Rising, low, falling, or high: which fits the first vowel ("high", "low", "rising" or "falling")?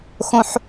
high